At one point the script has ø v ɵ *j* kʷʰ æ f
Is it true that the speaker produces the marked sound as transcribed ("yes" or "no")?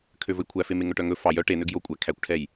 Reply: yes